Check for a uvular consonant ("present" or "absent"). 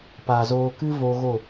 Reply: absent